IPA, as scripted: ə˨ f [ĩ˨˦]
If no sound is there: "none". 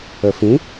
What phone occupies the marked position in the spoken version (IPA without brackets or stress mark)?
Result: ĩ˨˦